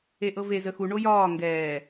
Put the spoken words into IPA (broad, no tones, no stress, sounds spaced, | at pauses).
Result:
e ʔ ɤ v e z ə x u ɳ o j ɒː ŋ ɡ ɛː